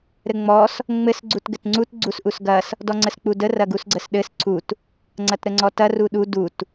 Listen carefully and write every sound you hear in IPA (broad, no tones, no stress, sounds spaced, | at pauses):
ɾ ɘ ŋ͡m ɔ s | ŋ͡m ɘ s ɡ͡ǀ u t ɡ ɘ t ŋ͡ǀ u t ɡ͡ǀ u s ʔ u s ɡ ɐ s | d ɔ ŋ͡ǀ ə s k͡p u d ə r ɐ ɡ u s ɡ͡ǀ ə s ɗ ɘ s ǀʰ u t | ŋ͡ǀ ɐ t ɾ ə ŋ͡ǀ ɔ t ɐ r u ɗ u d u t